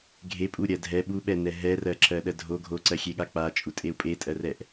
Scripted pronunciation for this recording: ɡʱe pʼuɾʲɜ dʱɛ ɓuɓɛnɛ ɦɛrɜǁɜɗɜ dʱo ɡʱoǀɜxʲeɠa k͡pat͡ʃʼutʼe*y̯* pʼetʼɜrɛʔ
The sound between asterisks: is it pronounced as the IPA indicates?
no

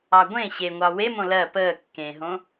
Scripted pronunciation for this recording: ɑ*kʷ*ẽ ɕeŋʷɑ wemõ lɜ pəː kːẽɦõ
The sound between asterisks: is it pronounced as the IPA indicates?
no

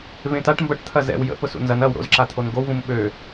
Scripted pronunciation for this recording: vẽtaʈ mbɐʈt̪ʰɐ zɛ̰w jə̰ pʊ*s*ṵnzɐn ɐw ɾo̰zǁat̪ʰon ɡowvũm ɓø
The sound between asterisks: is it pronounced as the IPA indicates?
yes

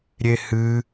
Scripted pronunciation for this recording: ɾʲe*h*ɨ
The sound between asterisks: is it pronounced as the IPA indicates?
yes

